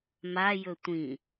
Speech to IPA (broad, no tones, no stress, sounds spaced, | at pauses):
m a j ɵ tʷ ĩ